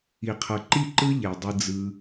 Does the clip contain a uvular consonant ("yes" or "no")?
yes